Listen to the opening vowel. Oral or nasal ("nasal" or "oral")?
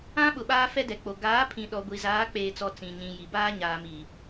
nasal